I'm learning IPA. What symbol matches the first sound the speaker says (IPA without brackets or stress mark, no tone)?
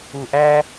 u